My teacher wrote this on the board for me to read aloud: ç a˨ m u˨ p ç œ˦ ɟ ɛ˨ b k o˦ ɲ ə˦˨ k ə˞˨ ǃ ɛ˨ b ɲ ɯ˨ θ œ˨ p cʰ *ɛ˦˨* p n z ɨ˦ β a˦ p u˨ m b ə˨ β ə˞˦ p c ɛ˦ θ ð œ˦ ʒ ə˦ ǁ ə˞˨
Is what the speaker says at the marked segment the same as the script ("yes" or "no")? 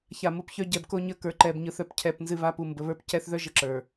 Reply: yes